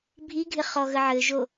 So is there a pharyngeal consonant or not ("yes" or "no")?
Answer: yes